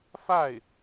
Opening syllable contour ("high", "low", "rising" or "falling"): falling